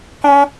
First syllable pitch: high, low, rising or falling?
high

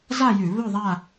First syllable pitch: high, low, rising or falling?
falling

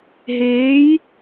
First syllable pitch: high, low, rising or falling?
rising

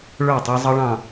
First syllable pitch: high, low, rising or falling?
falling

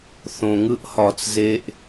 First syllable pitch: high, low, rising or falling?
low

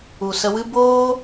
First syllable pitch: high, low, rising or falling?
low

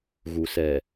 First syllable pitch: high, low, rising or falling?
low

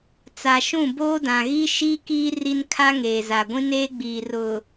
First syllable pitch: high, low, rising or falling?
low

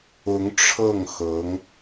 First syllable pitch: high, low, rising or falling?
rising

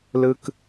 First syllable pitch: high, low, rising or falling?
high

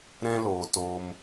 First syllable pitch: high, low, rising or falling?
high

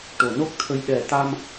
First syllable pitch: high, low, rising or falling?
low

